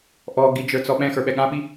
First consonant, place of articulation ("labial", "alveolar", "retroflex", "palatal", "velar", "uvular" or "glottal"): glottal